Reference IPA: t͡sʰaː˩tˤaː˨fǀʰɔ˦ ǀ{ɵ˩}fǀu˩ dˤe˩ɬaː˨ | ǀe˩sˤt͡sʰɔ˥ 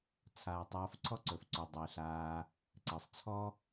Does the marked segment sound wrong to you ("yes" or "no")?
no